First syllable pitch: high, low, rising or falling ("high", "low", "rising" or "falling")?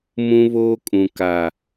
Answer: high